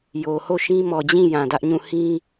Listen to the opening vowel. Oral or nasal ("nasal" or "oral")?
oral